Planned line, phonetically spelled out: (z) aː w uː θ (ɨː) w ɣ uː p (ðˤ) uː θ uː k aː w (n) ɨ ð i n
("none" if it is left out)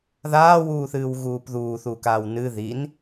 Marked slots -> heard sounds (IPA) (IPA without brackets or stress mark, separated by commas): ð, ɨː, ð, n